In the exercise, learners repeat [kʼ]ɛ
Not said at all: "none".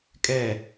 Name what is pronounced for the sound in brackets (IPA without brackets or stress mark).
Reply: kʼ